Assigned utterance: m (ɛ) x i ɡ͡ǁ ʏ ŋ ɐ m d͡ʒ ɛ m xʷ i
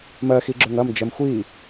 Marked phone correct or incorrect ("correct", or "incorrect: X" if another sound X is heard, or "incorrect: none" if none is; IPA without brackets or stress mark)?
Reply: incorrect: ɜ